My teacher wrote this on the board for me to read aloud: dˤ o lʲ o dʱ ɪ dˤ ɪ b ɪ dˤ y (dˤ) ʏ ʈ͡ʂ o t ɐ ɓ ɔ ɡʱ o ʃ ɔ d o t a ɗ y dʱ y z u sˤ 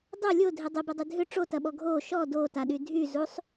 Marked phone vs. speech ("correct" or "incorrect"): incorrect